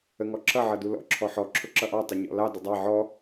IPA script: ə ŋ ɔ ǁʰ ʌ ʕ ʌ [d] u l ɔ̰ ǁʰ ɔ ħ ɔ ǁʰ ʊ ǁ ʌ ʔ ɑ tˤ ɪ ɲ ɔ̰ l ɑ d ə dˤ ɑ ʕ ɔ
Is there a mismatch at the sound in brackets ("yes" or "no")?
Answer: no